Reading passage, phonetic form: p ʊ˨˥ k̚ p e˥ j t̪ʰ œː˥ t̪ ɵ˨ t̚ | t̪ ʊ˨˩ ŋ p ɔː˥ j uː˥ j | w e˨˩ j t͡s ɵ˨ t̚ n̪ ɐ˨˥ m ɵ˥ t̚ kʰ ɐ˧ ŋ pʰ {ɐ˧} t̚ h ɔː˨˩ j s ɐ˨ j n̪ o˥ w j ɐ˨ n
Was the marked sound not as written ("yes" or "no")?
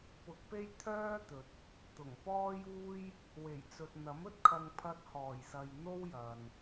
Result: no